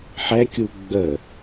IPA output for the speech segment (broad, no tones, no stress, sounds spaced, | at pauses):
ħ ɛ kʲ u ɡ͡b ə